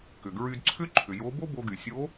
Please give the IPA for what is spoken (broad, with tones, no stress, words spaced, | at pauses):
kʏ˩ɡɹy˧dǀʰʏ˥ ǃʰʏ˩ jo˧˥ bo˥bo˧ɡy˩sʲo˧˥